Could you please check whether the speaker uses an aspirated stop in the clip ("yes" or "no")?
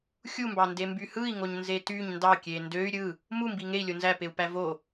no